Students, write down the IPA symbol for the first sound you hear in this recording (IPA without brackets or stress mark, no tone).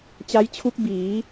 t͡ɕ